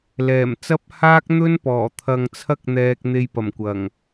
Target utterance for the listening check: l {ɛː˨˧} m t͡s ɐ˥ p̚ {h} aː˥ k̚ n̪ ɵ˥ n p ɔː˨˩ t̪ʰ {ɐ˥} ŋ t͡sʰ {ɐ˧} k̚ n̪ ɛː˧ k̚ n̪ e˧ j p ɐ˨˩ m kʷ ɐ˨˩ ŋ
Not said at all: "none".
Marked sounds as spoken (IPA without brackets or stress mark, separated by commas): ɛː˨˩, h, ɐ˧, ɐ˥